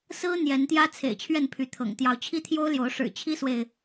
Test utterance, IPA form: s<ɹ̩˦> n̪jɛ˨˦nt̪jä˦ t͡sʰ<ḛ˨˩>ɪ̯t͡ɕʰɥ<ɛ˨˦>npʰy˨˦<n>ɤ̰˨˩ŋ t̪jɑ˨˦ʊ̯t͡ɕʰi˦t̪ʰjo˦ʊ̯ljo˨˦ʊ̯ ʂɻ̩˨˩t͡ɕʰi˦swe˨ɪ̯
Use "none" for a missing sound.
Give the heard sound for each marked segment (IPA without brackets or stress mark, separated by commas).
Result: ɹ̩˦, ḛ˨˩, ɛ˥˨, t̪ʰ